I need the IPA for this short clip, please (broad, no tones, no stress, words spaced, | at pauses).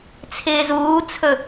t͡sʰɪːzuːt͡sʰɵ